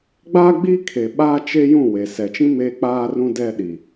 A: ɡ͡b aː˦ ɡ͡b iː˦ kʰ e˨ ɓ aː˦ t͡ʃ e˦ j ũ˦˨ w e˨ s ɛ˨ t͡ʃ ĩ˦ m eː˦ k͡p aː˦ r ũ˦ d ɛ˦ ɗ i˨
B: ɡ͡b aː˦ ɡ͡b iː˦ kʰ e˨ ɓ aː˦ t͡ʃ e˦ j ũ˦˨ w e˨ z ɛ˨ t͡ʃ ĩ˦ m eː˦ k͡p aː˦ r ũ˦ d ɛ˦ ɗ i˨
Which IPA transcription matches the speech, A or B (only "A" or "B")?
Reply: A